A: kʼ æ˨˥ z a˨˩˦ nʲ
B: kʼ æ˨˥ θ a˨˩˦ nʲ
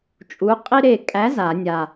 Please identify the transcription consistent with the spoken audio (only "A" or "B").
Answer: A